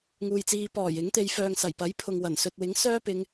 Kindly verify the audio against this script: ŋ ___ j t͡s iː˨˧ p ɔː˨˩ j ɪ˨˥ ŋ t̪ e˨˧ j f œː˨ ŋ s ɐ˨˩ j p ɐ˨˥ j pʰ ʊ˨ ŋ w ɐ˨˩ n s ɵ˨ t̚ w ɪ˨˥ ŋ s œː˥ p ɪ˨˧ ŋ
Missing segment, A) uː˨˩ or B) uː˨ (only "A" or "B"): B